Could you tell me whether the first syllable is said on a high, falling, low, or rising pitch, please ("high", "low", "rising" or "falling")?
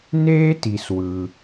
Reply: high